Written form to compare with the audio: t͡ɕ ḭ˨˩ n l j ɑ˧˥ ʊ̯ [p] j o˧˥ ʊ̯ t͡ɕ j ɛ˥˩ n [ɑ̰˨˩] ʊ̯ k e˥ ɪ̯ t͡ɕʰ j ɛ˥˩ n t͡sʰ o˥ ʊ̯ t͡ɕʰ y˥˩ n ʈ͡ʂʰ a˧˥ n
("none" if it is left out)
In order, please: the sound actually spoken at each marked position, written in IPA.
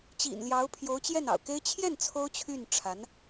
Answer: pʰ, ɑ̰˨˩

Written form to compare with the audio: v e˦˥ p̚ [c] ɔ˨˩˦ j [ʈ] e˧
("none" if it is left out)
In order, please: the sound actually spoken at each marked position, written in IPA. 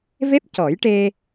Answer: c, ʈ

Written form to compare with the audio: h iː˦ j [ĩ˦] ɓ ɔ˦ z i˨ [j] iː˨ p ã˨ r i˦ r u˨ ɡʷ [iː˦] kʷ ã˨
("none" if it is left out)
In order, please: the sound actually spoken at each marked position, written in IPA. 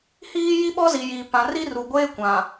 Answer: i˦, j, eː˦

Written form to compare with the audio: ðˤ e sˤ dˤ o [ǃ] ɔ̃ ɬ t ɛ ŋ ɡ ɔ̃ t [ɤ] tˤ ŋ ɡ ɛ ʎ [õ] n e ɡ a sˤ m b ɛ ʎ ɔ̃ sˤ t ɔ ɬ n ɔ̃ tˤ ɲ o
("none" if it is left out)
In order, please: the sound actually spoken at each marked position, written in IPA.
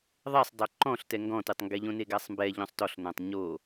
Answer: ǃ, ɯ, õ

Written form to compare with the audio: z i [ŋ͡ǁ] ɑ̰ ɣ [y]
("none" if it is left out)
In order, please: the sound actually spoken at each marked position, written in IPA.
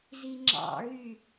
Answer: ŋ͡ǁ, y

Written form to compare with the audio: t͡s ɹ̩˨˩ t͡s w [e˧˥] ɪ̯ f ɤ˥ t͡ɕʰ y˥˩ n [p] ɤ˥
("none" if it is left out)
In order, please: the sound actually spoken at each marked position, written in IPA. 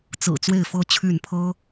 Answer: e˥˩, pʰ

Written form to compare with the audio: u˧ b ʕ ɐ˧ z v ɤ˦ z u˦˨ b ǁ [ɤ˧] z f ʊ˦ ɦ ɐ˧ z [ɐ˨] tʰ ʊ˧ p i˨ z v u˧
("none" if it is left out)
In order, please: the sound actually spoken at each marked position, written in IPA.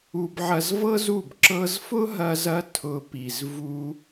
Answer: ɤ˧, ɐ˧

